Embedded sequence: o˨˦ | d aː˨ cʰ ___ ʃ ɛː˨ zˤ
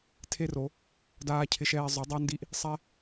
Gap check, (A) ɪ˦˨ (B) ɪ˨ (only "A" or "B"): B